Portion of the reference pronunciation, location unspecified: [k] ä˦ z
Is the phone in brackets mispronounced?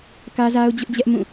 no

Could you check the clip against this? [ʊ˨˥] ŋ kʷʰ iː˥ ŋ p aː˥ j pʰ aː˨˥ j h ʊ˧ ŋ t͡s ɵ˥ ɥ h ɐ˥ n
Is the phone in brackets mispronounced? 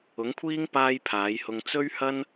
no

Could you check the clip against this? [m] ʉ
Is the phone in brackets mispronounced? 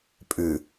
yes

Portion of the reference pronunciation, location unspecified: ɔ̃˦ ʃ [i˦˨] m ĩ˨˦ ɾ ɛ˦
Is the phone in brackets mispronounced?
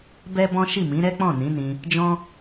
no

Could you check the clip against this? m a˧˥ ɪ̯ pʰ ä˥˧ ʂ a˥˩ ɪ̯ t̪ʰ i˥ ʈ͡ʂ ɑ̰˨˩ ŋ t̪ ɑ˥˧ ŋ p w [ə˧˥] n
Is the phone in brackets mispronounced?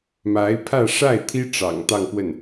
yes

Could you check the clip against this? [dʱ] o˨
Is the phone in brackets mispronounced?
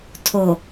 yes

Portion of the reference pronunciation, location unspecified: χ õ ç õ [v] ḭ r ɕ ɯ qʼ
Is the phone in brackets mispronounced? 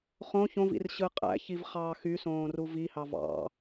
no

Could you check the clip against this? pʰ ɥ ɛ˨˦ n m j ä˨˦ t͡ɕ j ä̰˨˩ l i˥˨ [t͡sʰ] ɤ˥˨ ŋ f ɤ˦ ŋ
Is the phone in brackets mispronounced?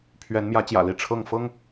yes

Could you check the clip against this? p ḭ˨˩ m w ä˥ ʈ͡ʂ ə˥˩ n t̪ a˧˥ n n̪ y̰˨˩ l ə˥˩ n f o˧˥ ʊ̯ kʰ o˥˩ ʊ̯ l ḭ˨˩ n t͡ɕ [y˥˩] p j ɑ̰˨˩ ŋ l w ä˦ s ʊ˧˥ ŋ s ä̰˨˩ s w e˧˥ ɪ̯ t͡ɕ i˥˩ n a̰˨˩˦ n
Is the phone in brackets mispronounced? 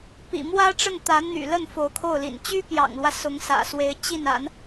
yes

